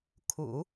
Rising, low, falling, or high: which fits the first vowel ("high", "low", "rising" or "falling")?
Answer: low